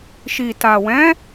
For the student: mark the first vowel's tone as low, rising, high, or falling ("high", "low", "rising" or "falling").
low